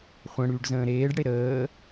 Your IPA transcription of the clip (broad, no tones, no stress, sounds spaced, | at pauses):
χʷ ə̃ ɽ yː ɖ z ə̃ː ɾ eː ɖ ɽ e ɾ əː